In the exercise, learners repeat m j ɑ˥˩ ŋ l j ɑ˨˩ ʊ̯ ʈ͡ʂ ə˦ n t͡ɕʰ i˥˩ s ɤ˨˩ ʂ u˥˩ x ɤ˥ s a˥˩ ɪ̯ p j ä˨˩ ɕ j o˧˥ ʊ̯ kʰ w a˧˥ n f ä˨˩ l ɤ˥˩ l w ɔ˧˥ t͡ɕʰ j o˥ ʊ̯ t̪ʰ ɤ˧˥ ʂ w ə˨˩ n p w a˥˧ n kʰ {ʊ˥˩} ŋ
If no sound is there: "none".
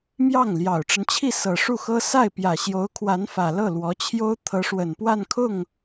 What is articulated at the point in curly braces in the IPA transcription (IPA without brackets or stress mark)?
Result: ʊ˥˩